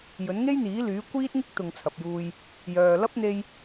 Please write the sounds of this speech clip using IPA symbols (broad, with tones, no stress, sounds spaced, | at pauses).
j ɵ˨˥ n ŋ e˥ j n̪ iː˨˥ l yː˨˥ kʷ iː˥ t̚ ŋ ɪ˥ k̚ t̪ ʊ˨ ŋ t͡sʰ ɐ˨ p̚ j uː˧ j | j œː˨ l ɐ˥ p̚ n̪ e˧ j